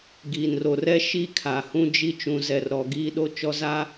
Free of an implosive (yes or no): no